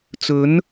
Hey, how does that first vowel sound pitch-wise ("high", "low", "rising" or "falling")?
rising